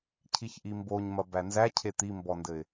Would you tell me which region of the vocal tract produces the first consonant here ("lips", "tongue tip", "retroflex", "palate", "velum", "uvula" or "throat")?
palate